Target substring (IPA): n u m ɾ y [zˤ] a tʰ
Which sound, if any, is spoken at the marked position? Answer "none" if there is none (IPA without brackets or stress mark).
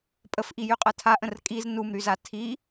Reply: z